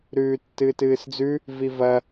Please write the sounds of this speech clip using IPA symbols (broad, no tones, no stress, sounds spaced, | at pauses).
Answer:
ɾ ʉː tː ɨː t ɨː s d͡z ʉ | v i v ɐ